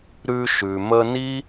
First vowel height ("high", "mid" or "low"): high